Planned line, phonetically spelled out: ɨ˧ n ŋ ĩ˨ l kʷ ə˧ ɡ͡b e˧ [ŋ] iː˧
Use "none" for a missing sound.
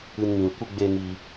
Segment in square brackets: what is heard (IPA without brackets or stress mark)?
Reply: ŋ